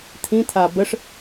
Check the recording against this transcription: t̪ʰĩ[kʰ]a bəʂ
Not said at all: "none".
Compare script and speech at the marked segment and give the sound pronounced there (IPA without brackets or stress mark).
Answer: t̪ʰ